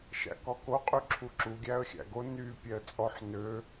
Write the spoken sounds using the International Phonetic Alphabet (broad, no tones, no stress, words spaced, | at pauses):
ʃæ̰kɔko qʼyǁʰuǁu ɡʲæə̯xʲæ̰ɡo ny pʲɛə̯t͡sʼɔħ nø